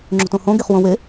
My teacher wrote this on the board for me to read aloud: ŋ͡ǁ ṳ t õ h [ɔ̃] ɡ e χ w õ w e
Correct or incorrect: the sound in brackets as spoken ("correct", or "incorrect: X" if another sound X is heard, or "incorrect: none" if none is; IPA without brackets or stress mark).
incorrect: õ